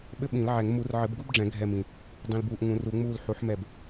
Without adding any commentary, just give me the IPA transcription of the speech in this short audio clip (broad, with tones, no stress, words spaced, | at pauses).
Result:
ɓɘ˥ɓĩ˨˩˦lʕɛ˨˩˦ŋ mu˨˩˦rʕɘ˨˩˦b ɡu˥bɖ͡ʐɛ̃˨˩˦ ɡʱɛ˦˨mĩ˨ | dˤĩ˨lbuː˨ʔ ŋũ˨˩˦ru˨˩˦ŋ͡muː˦˨l ħu˨˥ħmɛ˦˨b